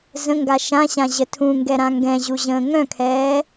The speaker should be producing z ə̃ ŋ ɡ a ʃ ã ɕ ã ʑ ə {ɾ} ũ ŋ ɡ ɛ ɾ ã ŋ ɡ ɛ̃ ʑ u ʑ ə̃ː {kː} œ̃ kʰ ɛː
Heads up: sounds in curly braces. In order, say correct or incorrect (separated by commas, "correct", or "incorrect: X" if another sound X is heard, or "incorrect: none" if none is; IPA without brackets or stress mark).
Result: incorrect: tʰ, incorrect: ŋ